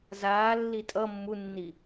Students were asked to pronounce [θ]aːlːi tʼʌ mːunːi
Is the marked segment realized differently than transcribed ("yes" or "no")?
yes